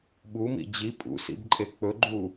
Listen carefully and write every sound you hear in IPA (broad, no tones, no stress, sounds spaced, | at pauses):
ɓ u m ḭ d͡ʑ i pʼ ṵ s ḭ b ǃʼ e k͡p ɵ ɡ͡ǃ u